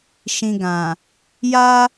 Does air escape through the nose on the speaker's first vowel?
yes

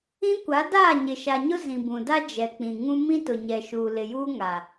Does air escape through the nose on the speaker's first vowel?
yes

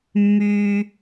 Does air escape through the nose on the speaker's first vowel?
no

